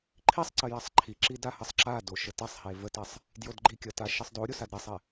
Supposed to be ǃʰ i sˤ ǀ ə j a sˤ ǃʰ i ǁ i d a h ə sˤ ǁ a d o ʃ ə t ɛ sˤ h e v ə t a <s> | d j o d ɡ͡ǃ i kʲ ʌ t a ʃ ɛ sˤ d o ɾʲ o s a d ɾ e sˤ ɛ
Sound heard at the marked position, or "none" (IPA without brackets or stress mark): sˤ